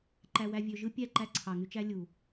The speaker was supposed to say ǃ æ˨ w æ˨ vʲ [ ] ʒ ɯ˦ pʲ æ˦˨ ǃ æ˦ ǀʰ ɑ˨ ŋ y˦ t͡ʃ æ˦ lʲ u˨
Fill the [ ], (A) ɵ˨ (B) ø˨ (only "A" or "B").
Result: B